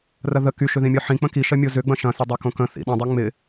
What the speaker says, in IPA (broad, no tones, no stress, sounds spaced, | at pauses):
r ɐ ð ə k y ʃ ʏ ð ĩ mʲ ɔ ħ ĩ k͡p ə̃ k i ʃ ɐ mʲ o z ʏ ɡ͡b ɐ̃ ʃ ɐ̃ s ʏ dˤ ɐ k õ k ə̃ θ ḭ ɗ ə̃ dˤ œ ŋ͡m ɪ